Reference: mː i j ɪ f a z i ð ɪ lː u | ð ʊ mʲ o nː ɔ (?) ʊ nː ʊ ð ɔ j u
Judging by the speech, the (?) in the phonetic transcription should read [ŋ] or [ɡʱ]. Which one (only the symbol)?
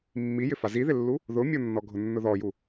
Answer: ɡʱ